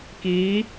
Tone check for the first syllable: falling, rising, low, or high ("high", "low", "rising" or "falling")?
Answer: rising